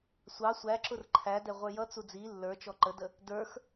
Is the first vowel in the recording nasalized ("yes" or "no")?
no